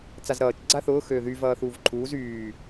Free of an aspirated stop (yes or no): no